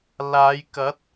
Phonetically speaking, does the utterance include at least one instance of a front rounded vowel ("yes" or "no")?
no